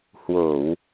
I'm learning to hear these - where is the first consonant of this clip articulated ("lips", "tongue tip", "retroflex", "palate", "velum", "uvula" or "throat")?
throat